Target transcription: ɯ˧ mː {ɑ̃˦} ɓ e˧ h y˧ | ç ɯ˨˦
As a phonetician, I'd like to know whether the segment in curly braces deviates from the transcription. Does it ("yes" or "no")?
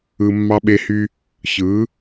yes